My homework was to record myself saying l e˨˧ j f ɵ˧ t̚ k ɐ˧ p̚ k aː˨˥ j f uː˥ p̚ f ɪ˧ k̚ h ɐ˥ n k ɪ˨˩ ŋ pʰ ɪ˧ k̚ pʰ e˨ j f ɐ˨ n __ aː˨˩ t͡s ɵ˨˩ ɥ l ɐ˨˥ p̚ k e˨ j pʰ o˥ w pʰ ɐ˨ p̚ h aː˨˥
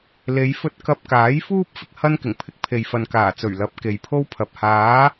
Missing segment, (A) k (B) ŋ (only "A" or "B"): A